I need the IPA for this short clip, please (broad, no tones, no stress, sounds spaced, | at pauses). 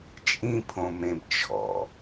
t͡ʃʼ ĩ pʰ õ m ẽ b t͡ʃʰ ɔ̰